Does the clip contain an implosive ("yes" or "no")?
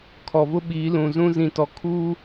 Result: yes